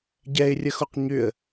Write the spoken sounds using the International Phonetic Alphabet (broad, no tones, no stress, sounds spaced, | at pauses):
ɟ ɛ ɪ̯ rʲ ə x o q ɲ ʏ ə̯